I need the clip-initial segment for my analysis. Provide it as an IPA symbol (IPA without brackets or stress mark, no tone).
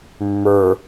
mː